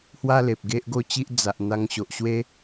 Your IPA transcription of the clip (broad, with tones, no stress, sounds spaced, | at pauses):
h w a˦ l e˨ p̚ ɡ e˦ ʔ ɡ o˥˧ t͡ɕ i˦ ʔ d͡z a˨ ʔ n̪ a˧ ŋ ɕ o˨ ʔ ɕ w e˦